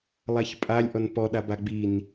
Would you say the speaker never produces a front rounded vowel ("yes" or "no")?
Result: yes